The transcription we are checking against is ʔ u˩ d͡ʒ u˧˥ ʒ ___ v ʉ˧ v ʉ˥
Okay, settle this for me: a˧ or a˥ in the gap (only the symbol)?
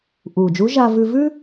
a˧